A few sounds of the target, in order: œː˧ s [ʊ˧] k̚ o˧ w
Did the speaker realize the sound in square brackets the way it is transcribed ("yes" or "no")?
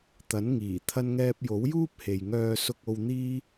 yes